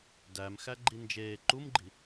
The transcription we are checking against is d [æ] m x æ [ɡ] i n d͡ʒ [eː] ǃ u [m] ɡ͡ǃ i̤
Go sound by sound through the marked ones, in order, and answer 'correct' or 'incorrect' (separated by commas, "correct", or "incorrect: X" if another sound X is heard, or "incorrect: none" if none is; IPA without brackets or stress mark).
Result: correct, incorrect: ɡ͡ǃ, correct, correct